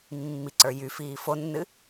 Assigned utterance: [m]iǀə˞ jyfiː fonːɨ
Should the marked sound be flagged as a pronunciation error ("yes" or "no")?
yes